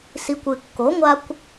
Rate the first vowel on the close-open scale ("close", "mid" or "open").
close